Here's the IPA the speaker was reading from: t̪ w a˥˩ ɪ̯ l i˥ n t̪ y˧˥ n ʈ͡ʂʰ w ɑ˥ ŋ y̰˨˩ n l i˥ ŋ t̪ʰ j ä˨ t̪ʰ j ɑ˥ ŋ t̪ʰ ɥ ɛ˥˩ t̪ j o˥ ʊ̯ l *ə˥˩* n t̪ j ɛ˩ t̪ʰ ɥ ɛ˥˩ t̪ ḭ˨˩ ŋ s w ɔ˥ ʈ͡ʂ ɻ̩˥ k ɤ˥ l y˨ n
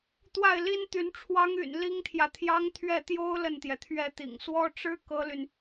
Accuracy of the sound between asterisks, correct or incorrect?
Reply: correct